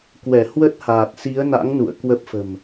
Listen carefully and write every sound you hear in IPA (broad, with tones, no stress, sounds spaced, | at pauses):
k w ɛ˧˩ h w ə˦˥ t̚ h aː˨˩ t̚ s i˨˦ ə̯ n a̰˧˥ ŋ n ṵ˧˨ ə̯ k w ə˦˥ p̚ f ə̤˨˩ m